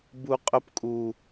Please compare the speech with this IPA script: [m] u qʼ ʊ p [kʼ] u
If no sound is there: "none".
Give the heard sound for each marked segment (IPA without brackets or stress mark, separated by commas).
b, kʼ